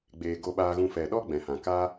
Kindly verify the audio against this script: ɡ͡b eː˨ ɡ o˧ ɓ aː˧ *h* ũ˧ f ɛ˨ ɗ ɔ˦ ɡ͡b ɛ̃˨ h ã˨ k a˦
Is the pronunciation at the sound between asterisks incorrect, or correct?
incorrect